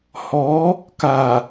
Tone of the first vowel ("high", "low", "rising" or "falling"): rising